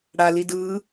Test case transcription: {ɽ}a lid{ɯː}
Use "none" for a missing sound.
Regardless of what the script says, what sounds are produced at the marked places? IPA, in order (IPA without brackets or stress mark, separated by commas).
ɽ, ɯː